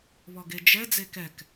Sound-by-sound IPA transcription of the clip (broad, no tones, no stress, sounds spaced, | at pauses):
β ɔ ɡ e d͡ʒ ɛ d͡z e k ɛ k